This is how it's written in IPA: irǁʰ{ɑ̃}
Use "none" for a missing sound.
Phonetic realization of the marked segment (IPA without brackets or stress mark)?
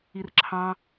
ɑ̃